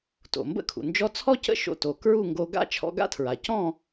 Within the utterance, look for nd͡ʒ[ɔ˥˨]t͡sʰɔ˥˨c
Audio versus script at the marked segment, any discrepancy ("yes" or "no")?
yes